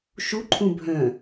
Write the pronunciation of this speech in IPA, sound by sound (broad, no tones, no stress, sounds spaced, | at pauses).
ʃ u ǃʰ ũ bʱ œ̃